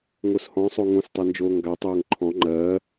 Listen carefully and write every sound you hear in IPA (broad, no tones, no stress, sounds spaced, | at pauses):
ŋ o s h ɔ̃ sˤ o ŋ õ s tˤ ɜ n d͡ʒ oː ŋ ɡ a tˤ oː ŋ ǃʰ ɔ̃ ŋ͡ǃ ɜː